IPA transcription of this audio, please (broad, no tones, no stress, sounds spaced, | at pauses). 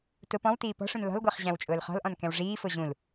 t ʊ p ɔ̃ w t iː p ɔ̤ ʂ ũ n l ɔ̤ l ɡʷ ɜ χ ʑ æ̃ w t͡ʃʼ ʊː l χ ɔ̤ l ʔ ɔ̃ n k ɛ̃ w ʐ iː f ʊ ʑ ũ l